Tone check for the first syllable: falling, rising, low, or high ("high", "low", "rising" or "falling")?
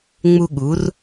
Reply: high